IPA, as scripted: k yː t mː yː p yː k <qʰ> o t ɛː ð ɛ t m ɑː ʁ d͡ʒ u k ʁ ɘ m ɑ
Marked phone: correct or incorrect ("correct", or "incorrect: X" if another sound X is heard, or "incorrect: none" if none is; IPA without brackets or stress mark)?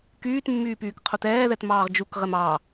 correct